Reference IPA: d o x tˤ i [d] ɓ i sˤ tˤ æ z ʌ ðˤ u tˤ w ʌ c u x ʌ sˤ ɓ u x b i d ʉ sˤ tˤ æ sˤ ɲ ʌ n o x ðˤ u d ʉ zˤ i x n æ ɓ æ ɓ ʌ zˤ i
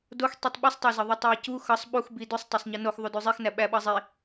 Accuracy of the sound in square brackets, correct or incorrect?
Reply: incorrect